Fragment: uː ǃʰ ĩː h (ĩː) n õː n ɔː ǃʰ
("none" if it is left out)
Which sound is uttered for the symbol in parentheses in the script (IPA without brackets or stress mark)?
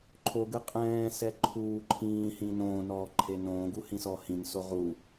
ĩ